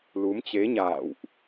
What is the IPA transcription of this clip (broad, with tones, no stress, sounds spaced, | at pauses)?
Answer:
l u˨˦ m t͡ɕ e˨˦ ɲ a̰ː˧˨ w ʔ